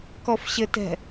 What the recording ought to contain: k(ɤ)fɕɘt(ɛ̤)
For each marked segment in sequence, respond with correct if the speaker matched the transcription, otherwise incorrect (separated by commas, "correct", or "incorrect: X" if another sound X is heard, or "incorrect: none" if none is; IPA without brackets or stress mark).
incorrect: ɔ, correct